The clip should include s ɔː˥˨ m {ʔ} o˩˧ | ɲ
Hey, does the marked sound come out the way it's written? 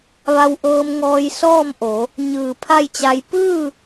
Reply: yes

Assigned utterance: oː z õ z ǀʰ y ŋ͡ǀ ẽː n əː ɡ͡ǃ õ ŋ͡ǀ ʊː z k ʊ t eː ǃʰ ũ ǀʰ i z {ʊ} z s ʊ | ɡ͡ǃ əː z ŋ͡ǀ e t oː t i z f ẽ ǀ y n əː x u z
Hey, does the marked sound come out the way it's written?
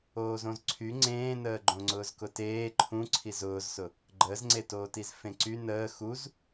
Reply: no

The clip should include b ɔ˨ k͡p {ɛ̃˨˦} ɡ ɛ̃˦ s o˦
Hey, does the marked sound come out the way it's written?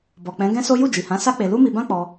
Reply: yes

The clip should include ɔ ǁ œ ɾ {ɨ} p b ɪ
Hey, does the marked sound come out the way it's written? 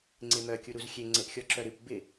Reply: yes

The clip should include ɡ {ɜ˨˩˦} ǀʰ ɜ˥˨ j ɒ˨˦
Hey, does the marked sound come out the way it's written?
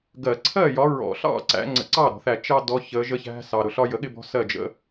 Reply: yes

